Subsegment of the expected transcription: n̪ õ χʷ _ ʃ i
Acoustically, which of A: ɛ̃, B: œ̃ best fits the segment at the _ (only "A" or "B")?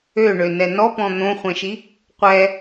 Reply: A